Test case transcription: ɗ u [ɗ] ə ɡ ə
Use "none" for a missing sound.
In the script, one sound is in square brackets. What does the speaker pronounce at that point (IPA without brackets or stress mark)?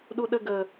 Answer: ɗ